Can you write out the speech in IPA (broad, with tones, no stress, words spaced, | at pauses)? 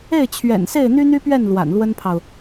e˥˩ɪ̯t͡ɕʰɥɛ̰˨˩nse˥˩ɪ̯ n̪y˥n̪y˥pɥɛ˥˩n lwa̰˨˩nlwə˥npʰɑ˨ʊ̯